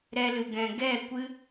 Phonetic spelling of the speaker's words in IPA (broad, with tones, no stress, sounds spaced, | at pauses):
ɾ ɛ˧ l ɨ˨ ɡ ɛ̃˨ ɡ ɛ˦˨ kʷ ɨ˦